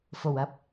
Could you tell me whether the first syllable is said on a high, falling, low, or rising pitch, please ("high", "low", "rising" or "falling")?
low